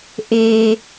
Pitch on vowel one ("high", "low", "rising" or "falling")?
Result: low